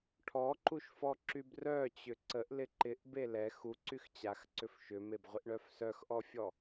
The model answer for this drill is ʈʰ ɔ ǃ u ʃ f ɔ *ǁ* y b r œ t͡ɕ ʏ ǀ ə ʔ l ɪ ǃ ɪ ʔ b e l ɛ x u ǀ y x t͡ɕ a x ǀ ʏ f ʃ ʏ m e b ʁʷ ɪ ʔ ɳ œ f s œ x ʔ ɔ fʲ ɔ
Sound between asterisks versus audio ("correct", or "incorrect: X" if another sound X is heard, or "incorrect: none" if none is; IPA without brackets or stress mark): correct